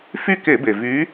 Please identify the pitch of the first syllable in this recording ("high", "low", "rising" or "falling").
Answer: falling